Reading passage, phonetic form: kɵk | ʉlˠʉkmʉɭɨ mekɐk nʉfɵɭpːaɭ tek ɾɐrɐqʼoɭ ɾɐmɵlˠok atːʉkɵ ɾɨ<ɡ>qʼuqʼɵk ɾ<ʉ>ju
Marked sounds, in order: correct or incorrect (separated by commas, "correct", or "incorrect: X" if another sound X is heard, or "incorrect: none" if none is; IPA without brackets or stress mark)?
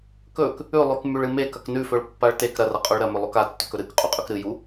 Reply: incorrect: k, incorrect: ɨ